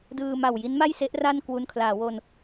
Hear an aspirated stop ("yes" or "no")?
yes